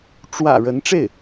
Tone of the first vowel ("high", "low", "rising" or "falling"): low